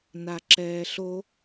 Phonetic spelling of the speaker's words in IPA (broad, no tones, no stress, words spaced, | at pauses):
naǁɛːɬo